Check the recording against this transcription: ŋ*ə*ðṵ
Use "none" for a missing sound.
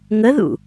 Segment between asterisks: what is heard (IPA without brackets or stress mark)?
ə